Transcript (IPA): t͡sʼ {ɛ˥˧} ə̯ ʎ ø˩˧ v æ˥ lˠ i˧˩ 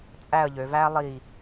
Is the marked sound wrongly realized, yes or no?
yes